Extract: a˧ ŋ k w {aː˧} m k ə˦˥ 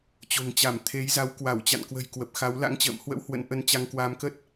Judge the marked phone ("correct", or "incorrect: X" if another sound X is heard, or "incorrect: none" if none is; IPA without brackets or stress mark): correct